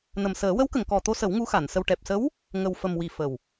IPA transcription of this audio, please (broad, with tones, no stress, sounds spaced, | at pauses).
n ə˨˩ m s əː˨˩˦ w ə˧˥ w k ə˨˩˨ ŋ k ɔ˨˩ t̪ o˧ s ə˨˩˦ w ŋ u˧˥ x a˨˩˨ n s ə˧ w ʈ ɛ˨˩ p̚ s ə˧˥ w | ŋ ə˨˩ w f ə˨˩ m w i˨˩ f ə˨˩ w